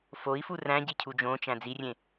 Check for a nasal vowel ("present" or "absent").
present